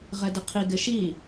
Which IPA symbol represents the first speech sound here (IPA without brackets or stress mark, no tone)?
ʁ